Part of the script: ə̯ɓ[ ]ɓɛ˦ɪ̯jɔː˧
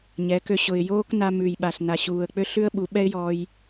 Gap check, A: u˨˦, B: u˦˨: A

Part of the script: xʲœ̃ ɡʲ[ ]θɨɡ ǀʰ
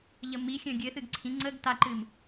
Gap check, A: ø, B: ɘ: B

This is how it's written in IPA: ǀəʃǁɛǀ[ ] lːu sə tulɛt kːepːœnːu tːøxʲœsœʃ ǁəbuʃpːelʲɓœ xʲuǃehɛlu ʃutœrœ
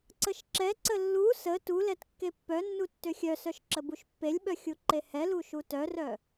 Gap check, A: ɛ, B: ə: B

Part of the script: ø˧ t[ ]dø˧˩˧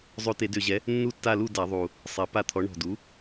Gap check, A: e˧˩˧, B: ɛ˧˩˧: A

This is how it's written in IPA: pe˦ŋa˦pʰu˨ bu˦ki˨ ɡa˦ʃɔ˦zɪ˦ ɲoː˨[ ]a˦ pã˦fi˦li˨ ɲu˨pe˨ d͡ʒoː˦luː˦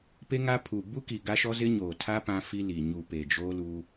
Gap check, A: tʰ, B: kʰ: A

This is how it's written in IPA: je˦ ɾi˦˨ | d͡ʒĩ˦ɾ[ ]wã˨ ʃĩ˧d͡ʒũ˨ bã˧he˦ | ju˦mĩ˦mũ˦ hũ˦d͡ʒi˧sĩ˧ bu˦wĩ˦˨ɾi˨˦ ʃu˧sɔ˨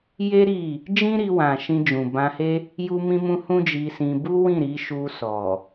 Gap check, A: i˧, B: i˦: A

